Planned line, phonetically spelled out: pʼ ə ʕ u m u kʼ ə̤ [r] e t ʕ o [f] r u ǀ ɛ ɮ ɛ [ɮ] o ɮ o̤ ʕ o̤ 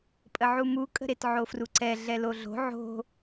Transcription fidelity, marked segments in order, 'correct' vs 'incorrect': incorrect: ɾ, correct, incorrect: l

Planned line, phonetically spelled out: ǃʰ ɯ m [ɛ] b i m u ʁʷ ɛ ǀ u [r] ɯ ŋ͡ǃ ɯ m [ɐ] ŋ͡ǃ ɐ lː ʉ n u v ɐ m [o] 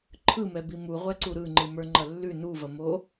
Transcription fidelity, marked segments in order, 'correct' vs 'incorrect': correct, incorrect: ɾ, incorrect: ə˞, correct

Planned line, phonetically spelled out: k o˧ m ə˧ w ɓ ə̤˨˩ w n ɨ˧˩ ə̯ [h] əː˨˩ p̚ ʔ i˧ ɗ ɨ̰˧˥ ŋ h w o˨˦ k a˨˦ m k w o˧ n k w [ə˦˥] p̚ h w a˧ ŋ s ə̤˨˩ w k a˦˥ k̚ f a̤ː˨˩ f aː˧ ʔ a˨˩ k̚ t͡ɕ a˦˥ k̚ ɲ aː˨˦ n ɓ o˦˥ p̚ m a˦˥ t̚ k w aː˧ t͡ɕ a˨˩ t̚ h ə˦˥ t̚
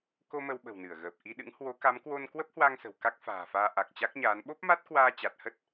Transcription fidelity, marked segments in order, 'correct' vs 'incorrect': incorrect: ɣ, correct

